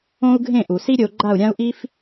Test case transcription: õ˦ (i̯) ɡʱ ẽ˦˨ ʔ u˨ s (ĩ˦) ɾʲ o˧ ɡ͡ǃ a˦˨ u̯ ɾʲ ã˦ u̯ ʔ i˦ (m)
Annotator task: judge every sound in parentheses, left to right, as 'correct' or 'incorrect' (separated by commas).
incorrect, incorrect, incorrect